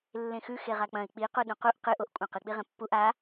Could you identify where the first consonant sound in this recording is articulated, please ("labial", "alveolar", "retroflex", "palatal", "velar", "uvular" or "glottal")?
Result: alveolar